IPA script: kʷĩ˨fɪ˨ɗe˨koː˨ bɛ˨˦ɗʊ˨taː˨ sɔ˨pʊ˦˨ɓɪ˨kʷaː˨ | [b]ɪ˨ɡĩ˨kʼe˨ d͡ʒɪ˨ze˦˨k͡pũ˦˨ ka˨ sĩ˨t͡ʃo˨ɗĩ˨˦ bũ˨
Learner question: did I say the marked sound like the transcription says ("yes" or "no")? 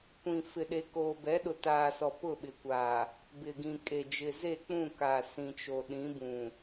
yes